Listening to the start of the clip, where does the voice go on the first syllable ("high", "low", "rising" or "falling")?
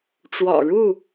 low